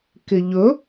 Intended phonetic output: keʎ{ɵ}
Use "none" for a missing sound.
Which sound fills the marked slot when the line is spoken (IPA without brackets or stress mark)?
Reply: ɵ